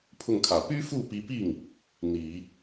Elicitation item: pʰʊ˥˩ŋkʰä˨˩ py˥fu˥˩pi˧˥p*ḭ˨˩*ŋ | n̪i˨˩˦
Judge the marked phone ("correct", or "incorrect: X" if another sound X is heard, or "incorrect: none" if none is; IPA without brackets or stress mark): incorrect: i˥˩